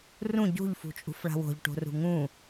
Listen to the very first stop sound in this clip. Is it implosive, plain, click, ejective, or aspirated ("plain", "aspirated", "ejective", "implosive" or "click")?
plain